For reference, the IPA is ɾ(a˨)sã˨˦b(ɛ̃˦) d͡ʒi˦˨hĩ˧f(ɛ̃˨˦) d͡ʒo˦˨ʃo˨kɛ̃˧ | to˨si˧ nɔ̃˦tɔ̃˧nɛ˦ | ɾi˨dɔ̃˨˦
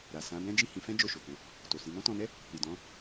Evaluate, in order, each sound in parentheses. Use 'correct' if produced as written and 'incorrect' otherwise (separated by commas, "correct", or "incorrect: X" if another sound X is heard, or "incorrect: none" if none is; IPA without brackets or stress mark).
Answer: correct, correct, incorrect: ɛ̃˦